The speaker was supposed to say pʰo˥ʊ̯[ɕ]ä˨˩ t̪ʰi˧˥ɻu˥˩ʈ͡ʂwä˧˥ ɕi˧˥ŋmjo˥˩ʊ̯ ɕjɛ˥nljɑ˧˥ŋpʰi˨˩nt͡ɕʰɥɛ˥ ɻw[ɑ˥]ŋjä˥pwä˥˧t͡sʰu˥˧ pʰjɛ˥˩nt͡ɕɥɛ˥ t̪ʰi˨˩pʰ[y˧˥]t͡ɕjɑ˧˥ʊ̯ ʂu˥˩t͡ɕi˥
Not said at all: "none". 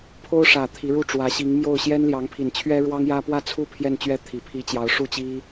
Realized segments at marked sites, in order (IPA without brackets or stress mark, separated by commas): ʂ, ɑ˥, i˧˥